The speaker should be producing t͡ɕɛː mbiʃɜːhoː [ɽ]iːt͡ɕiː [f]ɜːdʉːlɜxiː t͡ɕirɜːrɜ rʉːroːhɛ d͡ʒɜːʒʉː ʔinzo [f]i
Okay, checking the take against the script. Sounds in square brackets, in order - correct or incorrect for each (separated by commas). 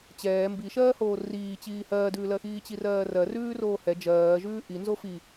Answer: incorrect, incorrect, correct